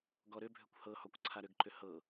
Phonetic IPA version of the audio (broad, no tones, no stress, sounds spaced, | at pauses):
ɡ ɔ ɾ ʏ bʱ ʏ kʷ h ɤ h ɔ kʷ ǀʰ a ɾ ʏ ɡ ǃ ʏ h ɤ